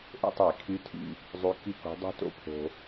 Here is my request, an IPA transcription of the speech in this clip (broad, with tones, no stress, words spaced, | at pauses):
ʔo̰˥˧tˤi˧˩˧kʰy˧˥tʰḭ˧ | zˤy˧˥ki˥˧ko̤˧˥ dˤṳ˥˧to̰˥˧pʰo̤˧